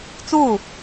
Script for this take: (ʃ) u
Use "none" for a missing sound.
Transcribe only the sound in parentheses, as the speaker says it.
t͡s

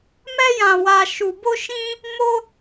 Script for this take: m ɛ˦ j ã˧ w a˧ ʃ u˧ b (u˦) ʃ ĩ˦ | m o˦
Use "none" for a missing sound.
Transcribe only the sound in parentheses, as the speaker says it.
o˦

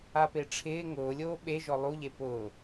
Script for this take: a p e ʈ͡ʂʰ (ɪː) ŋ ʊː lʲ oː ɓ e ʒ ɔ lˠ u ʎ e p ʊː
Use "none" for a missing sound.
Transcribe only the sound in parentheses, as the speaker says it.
ɪː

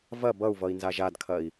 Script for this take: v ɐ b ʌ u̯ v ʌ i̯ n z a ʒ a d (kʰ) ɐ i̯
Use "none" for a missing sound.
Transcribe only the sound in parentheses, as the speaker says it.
kʰ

